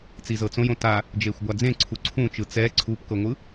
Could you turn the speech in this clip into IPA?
t͡sizɤt͡sõjõ ta | d͡ʒeːxʷɡʷad͡zẽ ǀʰuǀʰũt͡ʃɯ t͡sɛ ǀʰupkɤŋʷɯ

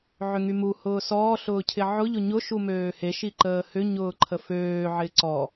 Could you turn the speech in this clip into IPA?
ʕʏŋymu hʊːsɔː ɬʊːcʰɪʕʊ ʎʊɲʊ ʃumøːhe ʃiǃəːhʏ ɲʊːǃʰəføː ʕɪǀɔ

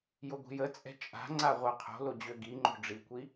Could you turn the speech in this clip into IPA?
joɡʷi̤jət͡sʼɛ̤ t͡ʃʼa̤ŋ͡ǀa ʁʷaqʰo̤lo d͡ʑøɡiŋ͡ǃo̤ ɖ͡ʐikʷi

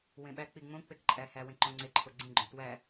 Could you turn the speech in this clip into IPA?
wẽɓæ k͡piŋ͡mõ k͡pekǃʼæ hæ wẽǃõŋ͡ǀe ǃʰoɡ͡ǀĩ ɡ͡ǃõtwæ

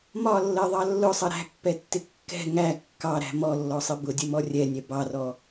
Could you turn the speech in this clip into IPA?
mɒlːɜðˤɑ lːʊsˤʌ ɾæ̤pːɛtːɪ kːɛ̤ ŋæ kːɑɾæ̤ mɔlːɔsˤɪ bʊdʲəmɔ rʲɛnʲɛ bɑrɔ

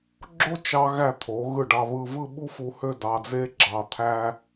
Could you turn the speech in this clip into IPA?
ɡ͡ǁo˥t͡ʃɑ˧ɣæ˧˩ t̪ʰo˩˧ɣɯ˧˩ɖɑ˧βɯ˧ vɯ˥˧ɓu˥fu˧hø˥˧ dɑ˧d͡ze˥ɡ͡ǁɑ˧ t̪ʰæ˥

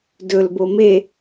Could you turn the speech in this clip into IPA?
dɵlbo me

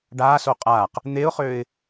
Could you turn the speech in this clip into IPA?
ɖaːso qʼaːq | n̪eʊ̯χøːɪ̯

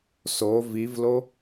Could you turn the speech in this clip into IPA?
so vivlo

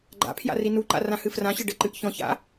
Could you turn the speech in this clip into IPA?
ɡ͡ǃa̰pʰja̰ rinuǃa̰ rãhɨfrãɕɘ ɖɘǃɨʔ çɔ̃ça̰

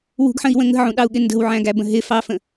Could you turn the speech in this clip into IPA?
wṳɡħə̃i̯wə̃ ŋə̤ʕũɗɑu̯ɠɪ ndə̤wʕæ̃ɡæbə̃ ɦɪfɑfə̃

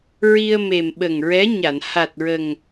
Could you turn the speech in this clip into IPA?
ɹi˧ə̯me˨˩m ɓə˨˩ŋɹɛ˧˥ɲa˨˩˨n ha˨˩t̚ɹə˨˩ŋ

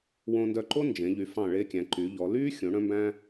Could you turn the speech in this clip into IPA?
wõ˧ndœ˧ǃo˥ nd͡ʒẽ˩˧ʎy˩˧fɑ̃˧˩ ɭe˧kʲæ̃˩˧ ǃyː˩˧ʎɔ˩˧lyː˥ xʲõ˩˧ɽœ̃˧mbæ̃˧

